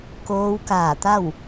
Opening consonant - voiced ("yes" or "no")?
no